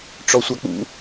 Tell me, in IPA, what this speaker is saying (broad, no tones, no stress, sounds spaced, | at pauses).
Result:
ʈ͡ʂ ɔ sʷ a k͡p ṵ